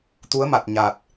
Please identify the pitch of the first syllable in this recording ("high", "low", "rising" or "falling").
rising